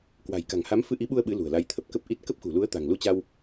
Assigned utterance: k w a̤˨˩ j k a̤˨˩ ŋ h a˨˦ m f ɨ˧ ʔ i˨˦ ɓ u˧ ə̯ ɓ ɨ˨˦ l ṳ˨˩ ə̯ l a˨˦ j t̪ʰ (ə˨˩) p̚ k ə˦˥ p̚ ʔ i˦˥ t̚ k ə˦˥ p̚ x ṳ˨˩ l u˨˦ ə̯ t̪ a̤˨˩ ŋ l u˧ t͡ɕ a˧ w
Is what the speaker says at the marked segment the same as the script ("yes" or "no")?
yes